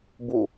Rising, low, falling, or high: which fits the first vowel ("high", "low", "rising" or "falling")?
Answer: falling